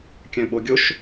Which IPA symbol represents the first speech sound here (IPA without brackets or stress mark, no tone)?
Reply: kʲ